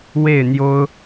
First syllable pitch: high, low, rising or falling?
falling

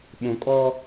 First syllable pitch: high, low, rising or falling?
low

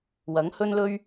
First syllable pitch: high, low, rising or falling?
rising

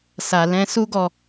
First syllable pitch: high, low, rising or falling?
low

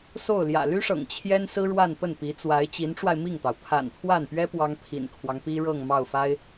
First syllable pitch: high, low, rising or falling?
falling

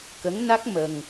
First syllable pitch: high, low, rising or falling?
rising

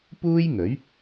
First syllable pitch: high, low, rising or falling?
high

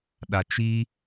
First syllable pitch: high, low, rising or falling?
low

